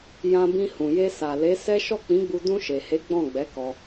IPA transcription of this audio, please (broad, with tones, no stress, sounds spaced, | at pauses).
j ã˧ b ĩ˧ h ũ˨ j e˧ s a˨ l e˨˦ s ɛ˦ ʃ ɔ˦˨ k͡p ĩ˨˦ ɡ͡b u˧ d ũ˧ ʃ e˨ h e˨˦ ɡ͡b ɔ̃˦˨ ɡ͡b ɛ˨˦ k ɔ˧